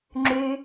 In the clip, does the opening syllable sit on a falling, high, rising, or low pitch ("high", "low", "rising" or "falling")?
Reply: high